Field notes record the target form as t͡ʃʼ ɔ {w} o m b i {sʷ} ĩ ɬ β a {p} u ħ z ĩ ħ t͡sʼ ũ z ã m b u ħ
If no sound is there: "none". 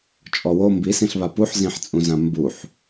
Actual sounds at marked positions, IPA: w, s, p

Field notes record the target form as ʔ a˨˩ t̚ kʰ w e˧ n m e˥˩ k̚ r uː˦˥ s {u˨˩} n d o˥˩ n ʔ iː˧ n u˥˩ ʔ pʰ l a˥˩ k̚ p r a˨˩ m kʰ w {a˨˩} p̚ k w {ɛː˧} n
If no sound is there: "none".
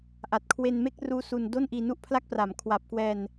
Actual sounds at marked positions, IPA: u˧, a˨˩, ɛː˧

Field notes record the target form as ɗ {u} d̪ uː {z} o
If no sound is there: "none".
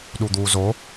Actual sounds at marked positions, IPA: u, z

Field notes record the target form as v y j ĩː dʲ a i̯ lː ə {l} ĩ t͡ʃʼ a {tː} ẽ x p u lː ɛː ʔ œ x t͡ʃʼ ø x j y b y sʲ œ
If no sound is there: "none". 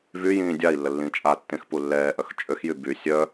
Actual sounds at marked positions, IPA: lː, tː

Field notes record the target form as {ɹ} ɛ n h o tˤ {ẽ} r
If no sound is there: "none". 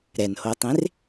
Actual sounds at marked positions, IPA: ɾ, ẽ

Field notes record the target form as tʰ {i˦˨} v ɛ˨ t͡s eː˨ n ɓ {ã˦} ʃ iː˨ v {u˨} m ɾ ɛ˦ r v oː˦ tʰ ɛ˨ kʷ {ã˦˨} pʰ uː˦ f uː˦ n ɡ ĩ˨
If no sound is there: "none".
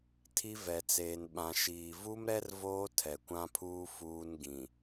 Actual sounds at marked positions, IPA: i˦, ã˨, u˦, ã˦

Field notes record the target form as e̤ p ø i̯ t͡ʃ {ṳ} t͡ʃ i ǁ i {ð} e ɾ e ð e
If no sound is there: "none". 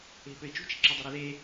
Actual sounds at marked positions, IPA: ṳ, dˤ

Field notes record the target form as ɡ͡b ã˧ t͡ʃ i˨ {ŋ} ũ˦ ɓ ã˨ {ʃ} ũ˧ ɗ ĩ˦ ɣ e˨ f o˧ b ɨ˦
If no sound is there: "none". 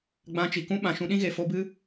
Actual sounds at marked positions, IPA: k, ʃ

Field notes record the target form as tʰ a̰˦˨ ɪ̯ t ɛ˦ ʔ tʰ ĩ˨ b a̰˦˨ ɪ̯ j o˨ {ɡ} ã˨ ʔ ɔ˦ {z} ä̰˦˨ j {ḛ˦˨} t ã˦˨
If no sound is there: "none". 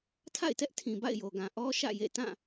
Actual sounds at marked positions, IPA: ɡ, ʃ, ḛ˦˨

